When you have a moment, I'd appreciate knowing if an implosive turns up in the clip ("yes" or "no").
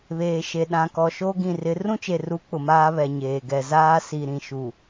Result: yes